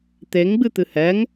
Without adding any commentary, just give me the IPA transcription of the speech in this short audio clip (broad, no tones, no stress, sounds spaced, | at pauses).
t̪ e ŋ ɡ͡b ɨ t̪ ɨ h ɛ ŋ